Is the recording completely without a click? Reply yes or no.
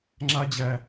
no